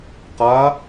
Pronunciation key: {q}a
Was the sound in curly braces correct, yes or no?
yes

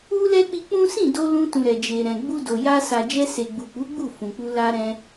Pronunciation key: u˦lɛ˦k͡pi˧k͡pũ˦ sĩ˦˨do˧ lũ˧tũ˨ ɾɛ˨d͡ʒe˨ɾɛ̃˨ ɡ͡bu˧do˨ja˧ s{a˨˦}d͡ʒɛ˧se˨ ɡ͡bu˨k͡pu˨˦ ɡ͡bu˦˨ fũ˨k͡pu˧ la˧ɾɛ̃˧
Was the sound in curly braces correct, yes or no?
no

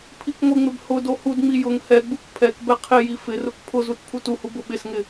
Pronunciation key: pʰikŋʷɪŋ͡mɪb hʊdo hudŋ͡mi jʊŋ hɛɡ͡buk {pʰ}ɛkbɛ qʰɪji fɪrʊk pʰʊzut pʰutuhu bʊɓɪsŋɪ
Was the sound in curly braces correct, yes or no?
yes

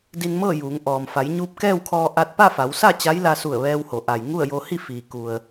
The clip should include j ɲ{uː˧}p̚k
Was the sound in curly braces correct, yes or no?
yes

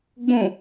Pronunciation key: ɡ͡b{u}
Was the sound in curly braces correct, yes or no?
no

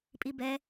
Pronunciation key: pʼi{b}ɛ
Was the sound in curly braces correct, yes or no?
yes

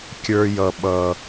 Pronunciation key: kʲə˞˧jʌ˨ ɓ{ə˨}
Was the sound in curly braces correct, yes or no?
no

